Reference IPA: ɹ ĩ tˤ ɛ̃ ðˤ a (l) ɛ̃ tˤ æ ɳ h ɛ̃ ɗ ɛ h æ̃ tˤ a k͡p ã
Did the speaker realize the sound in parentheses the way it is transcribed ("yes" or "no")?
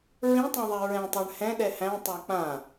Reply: no